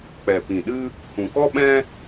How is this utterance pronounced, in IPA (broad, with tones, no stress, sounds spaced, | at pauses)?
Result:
k͡p ɛ˨ p ĩ˨ ɗ ɨ˦ | h ũ˨ k ɔ˦ ɓ ɛ̃˦